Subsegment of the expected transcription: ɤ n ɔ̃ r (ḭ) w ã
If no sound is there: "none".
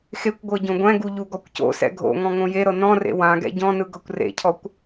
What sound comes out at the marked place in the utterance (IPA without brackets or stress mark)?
ḛ